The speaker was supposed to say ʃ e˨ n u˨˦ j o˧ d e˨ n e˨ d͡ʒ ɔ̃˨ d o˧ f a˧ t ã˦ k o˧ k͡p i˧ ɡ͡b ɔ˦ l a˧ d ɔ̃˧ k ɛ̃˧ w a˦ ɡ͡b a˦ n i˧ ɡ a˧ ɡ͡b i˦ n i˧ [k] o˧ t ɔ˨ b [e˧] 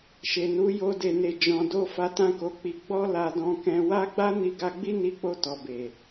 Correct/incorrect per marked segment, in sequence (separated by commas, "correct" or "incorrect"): incorrect, incorrect